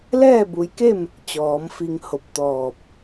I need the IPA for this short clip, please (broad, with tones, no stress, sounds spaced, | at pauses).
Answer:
l ɛː˥˨ b u˩˧ j k e˥˨ m | t͡ɕ ɔː˩˧ m f i˧ ŋ h o˧˩ p̚ t̪ ɔː˧˩ p̚